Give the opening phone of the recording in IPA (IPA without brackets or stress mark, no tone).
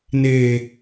n